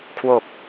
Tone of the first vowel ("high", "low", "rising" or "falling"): low